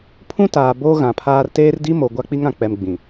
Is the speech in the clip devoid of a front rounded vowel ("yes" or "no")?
yes